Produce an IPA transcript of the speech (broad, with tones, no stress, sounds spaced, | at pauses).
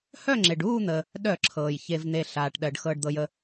h œ˥˨ ŋ͡ǁ e˩ ɖ uː˥˨ n̪ ə˩ | ɗ œ˧˩˧ ǁʰ ɤː˩ j ç e˩ v n̪ e˩ ɬ aː˩ ʈ ɗ ɜ˩ ɖ x ɤː˩ ɖ d̪ ɤ˩ j ə˩